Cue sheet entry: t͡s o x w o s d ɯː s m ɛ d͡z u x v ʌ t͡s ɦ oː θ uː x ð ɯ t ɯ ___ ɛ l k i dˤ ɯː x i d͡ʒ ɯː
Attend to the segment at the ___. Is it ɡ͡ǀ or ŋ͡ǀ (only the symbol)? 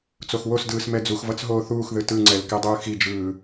ŋ͡ǀ